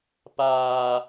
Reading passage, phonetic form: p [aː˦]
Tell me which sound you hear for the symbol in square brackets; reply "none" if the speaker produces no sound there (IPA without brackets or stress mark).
aː˦